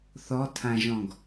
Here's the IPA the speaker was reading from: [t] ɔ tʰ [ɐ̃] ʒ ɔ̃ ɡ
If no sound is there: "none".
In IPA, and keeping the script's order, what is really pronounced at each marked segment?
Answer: θ, ã

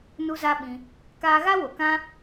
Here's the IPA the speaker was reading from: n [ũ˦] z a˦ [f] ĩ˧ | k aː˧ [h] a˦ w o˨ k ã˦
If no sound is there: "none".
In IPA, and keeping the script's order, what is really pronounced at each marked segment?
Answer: u˦, ɓ, ɣ

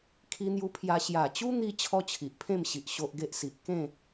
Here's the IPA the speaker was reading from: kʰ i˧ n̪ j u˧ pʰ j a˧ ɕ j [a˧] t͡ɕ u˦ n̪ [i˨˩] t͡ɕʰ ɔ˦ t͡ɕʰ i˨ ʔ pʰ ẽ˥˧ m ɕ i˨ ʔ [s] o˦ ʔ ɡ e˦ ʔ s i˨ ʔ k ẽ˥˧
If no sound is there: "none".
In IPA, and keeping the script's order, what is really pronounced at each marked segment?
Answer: a˨˩, i˧, ɕ

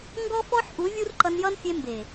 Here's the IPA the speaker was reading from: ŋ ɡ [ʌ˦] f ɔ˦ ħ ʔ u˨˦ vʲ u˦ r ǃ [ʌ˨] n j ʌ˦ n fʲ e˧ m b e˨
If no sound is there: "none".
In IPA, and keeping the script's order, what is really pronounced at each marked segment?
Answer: ɔ˦, ʌ˧

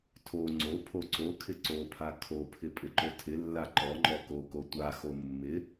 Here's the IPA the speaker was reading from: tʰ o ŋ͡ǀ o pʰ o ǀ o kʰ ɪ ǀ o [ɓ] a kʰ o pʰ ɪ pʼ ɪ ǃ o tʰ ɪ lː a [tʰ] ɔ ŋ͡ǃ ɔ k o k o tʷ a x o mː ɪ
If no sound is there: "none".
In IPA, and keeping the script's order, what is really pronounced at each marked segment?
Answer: pʰ, ǃ

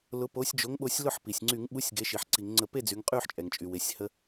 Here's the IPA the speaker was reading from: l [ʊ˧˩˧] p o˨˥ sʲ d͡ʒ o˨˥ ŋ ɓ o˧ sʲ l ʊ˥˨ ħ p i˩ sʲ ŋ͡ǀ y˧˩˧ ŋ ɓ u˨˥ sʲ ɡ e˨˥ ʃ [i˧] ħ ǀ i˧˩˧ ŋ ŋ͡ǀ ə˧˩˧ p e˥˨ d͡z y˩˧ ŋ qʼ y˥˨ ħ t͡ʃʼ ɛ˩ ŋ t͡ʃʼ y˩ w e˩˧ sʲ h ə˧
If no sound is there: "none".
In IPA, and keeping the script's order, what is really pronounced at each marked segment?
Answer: ʊ˨˥, i˩˧

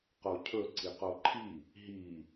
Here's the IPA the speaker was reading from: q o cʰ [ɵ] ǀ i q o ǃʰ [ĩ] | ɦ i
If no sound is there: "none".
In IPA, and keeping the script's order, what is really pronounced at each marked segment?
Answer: ɵ, i

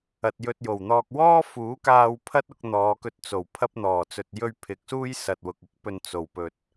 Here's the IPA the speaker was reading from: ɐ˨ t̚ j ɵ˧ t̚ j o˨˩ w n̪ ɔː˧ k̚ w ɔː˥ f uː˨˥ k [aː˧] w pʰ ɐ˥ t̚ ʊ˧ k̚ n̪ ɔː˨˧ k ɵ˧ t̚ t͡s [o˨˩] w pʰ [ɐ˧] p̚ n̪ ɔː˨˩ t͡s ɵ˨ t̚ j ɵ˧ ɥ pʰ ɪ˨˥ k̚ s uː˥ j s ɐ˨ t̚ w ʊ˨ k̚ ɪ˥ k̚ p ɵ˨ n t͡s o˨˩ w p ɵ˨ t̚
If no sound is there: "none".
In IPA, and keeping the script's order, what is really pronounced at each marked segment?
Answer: aː˧, o˨˩, ɐ˧

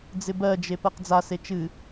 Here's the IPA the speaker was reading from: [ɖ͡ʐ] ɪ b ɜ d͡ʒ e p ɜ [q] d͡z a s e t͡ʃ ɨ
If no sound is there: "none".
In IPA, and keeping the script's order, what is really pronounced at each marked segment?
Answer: d͡z, q

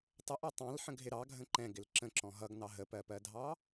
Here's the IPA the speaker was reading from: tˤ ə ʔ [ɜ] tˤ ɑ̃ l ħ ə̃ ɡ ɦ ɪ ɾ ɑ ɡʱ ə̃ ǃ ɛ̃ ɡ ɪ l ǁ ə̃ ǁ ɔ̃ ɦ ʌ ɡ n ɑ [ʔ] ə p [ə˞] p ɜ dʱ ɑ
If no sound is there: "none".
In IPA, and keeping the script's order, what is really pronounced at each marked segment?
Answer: æ, ɦ, ɜ

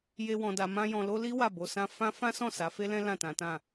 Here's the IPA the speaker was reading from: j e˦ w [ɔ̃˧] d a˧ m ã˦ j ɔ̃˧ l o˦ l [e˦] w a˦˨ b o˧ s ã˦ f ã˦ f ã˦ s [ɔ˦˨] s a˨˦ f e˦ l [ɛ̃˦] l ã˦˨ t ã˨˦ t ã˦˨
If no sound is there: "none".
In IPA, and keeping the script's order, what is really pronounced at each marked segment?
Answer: ɔ̃˧, i˦, ɔ̃˦˨, ɛ̃˦

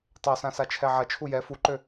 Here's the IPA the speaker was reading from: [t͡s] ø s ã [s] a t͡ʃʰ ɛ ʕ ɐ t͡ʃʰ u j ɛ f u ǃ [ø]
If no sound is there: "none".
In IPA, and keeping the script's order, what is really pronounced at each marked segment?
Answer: tˤ, s, ø

